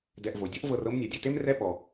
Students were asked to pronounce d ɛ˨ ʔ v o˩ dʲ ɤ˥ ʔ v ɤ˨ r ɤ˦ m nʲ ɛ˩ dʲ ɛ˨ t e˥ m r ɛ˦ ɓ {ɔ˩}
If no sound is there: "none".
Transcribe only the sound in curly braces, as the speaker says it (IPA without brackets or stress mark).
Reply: ɔ˩